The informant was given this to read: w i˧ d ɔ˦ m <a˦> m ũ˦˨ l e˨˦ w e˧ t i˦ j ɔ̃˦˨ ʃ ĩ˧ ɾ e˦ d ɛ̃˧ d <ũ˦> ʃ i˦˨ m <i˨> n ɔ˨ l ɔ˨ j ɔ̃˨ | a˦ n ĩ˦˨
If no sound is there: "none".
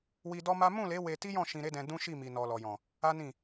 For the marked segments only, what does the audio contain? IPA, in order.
a˦, ũ˦, i˨

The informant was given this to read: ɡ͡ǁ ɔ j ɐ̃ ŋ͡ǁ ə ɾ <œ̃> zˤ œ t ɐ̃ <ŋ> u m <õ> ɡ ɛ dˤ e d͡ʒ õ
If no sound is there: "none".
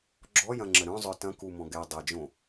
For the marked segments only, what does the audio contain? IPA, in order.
œ̃, k, ɔ̃

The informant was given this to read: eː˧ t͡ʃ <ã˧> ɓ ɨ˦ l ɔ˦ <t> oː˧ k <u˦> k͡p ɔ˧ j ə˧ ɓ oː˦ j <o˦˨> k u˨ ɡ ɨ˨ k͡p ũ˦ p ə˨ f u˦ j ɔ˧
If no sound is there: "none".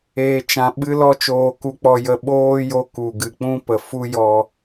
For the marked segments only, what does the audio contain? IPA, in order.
ã˧, t͡ʃ, u˧, o˧

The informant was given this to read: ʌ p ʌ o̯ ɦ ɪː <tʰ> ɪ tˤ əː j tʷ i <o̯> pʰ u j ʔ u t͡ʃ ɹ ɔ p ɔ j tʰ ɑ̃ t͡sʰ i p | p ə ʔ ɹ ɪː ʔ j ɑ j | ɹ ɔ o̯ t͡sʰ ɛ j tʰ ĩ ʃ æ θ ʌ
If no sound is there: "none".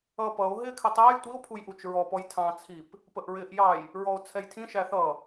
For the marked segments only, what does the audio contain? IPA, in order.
kʰ, o̯

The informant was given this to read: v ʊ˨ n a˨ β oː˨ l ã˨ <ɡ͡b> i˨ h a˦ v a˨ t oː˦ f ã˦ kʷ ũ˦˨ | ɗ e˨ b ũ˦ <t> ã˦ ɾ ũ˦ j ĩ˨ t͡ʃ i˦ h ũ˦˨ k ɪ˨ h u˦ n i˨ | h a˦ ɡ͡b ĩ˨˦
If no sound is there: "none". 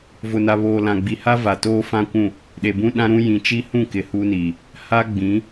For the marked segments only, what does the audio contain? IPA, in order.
ɡ͡b, ɗ

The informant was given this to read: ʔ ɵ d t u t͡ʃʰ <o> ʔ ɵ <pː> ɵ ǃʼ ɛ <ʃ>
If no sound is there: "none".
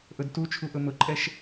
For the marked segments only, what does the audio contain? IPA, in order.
u, m, ʃ

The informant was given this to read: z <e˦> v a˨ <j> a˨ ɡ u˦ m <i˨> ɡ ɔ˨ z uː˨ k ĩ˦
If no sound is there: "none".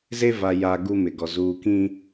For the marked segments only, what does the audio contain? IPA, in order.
e˦, j, ɪ˨

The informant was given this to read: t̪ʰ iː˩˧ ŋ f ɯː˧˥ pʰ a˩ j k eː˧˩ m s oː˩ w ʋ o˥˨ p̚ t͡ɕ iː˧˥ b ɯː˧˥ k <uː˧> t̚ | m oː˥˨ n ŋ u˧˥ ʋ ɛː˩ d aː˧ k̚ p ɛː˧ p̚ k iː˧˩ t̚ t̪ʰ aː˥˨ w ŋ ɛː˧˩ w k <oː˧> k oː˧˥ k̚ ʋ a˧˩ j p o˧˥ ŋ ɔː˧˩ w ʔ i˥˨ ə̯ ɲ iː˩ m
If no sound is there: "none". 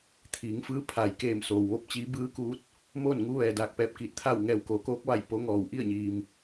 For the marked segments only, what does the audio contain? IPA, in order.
uː˧˥, oː˩˧

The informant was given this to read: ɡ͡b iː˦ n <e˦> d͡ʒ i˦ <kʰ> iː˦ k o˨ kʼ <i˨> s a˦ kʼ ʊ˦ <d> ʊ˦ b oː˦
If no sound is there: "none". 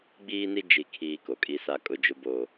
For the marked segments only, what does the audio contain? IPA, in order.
i˦, kʰ, i˦, d͡ʒ

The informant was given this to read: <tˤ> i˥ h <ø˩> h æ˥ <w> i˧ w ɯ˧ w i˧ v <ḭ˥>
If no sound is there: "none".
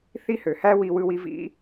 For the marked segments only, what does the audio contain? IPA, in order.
θ, ø˩, w, ḭ˥

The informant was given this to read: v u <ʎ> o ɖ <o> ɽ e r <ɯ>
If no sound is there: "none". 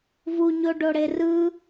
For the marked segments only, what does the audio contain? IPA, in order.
ɲ, o, ɯ

